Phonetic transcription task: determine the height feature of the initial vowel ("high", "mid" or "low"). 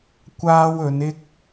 low